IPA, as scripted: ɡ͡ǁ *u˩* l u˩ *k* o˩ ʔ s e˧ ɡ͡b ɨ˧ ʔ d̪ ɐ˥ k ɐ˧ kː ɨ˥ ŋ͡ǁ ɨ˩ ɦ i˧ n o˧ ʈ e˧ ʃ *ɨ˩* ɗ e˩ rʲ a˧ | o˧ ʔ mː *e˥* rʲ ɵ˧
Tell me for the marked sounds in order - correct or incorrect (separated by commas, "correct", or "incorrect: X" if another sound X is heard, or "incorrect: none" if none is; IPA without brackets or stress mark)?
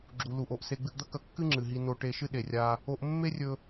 correct, incorrect: ʔ, incorrect: ɨ˥, correct